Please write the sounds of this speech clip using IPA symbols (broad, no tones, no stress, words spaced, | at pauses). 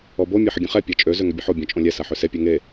ɔbo mʲeħəɡʲə̃χɛ pʲɔt͡ʃʼø zøŋøbʲəħo bʲõt͡ʃʼõlʲɛ saħøse pʲɛŋe